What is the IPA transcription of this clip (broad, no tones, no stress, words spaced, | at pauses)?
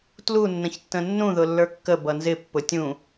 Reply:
tlunːə̃çtːə̃ nːũðʊ lːə˞kːə bʌnzɪ pːʊtʲũ